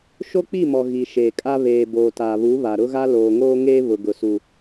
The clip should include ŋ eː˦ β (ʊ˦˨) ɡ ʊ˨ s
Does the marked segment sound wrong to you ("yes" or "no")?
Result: yes